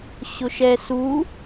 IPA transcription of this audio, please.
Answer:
ɕ ʊ ʃ ɛ s u

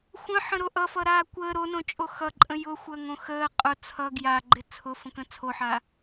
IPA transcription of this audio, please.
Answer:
xʷ ə̃ ħ ə̃ ɾ o ʔ ʌ f ʌ ɾ aː kʷ əː ɾ o n õ t͡ʃʼ o x ʌ ǃʼ ə̃ j ʊ xʷ əː ŋ õ x əː qʼ ʊ t͡sʰ ʌ ɡ j a ɡ͡ǃ ɪ t͡sʰ ʊ f ə̃ k ə̃ t͡sʰ o ħ aː

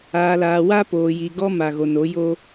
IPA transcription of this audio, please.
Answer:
aː˨ l aː˨ w a˦ p oː˨ j i˨ ɡ ɔ˦ m a˨ ɣ o˨ n o˨˦ j o˦

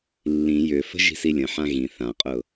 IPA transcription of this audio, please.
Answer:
lː ĩ j ʏ f ə̤ ʒ i̤ s i lʲ ə̃ ħ ã ɣ ĩ θ ã qʼ ʊ

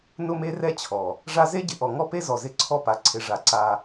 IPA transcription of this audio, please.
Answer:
n ʊ˦ m e˦ r ɛ˦ t͡ɕʰ ɔ˨ | ʐ a˦ z e˦ ɟ ɪ˨ ʔ ɔ˨ ŋ ɔ˦ p e˦ z ɔ˨ z ɪ˦˨ ǀʰ ɔ˦ p a˨ ǀʰ ɪ˨ ʐ a˨ ǀ a˦

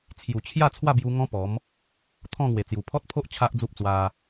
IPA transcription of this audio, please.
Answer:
t͡sʰ j u˨˩ t͡ɕʰ j a˥˧ t͡sʰ w a˥˧ b j u˧ ŋ ɔ̃˦ p ɔ˨˦ m | t̪ʰ ɔ̃˥˧ ŋ w e˨˩ t͡s j u˨˩ pʰ ɔ˦ t̚ pʰ o˦ ʔ t͡ɕʰ a˦ ʔ d͡z u˦ p̚ t͡s w a˧

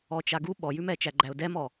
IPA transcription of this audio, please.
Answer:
ɔ t͡ʃ a ɡ u ɓ ɔ j ʉ m ɛ t͡ʃ æ ɡ͡ǃ æ ʊ̯ d ɛ m ɔ

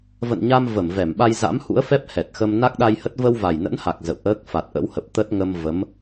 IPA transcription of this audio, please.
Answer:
v ə̰˧˨ n ɲ a˧ m v ə˧˩ m v ɛ˧˩ m ɓ a˧ j z a̰˧˥ m h ṵ˧˥ ə̯ f ɛ˦˥ p̚ h ɛ˨˩ t̚ x ə˧ m n a˦˥ k̚ ɗ a˧ j h ə˦˥ t̚ v ə˧ w v a˨˩ j n ə̰˧˥ n h a˨˩ k̚ z ə̰˧˨ w ʔ əː˦˥ k̚ f a˨˩ t̚ ʔ ə̰˧˥ w h ə˨˩ p̚ t̪ ə˦˥ t̚ ŋ ə˧ m v ə˨˦ m

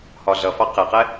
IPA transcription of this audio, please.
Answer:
h ɒ ɮ ʌ f ɑ q ɪ q ɛ

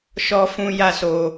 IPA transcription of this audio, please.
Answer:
ʃ ɔ˦ f ũ˦ j a˦ s o˧

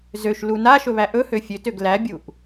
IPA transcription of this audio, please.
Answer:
z ø ʃ l u n a ʃ ɵ β æ ʔ ɵ h ø fʲ ø t ø ɡ l æ bʲ u ʔ

